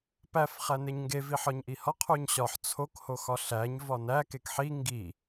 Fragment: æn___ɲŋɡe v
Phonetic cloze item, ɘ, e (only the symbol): e